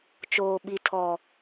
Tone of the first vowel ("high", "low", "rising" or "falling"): low